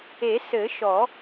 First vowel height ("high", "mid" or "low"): mid